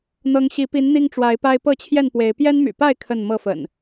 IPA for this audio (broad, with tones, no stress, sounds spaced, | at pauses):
n̪ ɤ˨˦ ŋ ɕ i˨˦ p i˨˦ n n̪ i˦ ŋ ʈ͡ʂ w a˨˦ ɪ̯ p a˦ ɪ̯ p ɤ˥˨ t͡ɕʰ j ɛ˥˨ n p w e˨˦ ɪ̯ p j ɛ˦ n m y̰˨˩ p a˥˨ ɪ̯ kʰ ə˥˨ n m ɤ˥˨ f ə̰˨˩ n